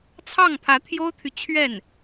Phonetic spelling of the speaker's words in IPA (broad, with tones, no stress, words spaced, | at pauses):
t͡sʰɑ˥˩ŋpʰä˧˥t̪ʰjo˥ʊ̯t̪ʰy˨ t͡ɕʰɥɛ˥˩n